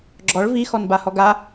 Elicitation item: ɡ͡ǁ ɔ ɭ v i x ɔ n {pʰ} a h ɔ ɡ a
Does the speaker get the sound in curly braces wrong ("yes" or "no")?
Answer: yes